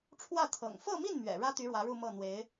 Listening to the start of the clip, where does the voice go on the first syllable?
falling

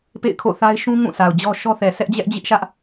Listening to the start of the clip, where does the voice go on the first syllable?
falling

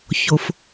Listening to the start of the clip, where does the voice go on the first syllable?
low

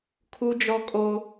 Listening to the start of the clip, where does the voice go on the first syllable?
high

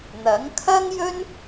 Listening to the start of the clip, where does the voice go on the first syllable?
rising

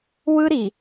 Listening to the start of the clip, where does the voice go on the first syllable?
high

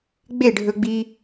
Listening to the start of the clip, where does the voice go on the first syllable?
falling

